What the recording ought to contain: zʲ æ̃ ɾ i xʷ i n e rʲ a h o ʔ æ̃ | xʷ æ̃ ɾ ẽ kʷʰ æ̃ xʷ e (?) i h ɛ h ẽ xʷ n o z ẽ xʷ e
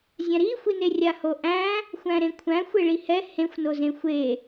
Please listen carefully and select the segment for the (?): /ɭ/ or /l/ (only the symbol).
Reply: ɭ